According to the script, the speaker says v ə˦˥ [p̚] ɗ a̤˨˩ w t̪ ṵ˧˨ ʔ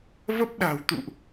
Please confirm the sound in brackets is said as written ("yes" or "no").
yes